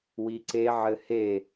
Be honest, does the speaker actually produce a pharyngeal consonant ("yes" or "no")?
yes